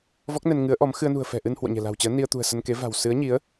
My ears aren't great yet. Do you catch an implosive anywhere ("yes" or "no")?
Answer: no